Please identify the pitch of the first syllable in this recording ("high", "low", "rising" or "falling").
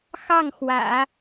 falling